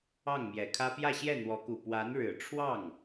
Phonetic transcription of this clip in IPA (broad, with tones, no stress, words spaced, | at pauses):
ɑ˥˩ŋmjɛ˨˩kʰä˥ pjä˥˧ɕjɛ˥˩n̪wɔ˧˥ku˨˩ pwa˧˥nɻɻ̩˨˩ ʈ͡ʂʰwɑ˥˩ŋ